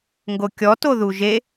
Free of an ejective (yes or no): yes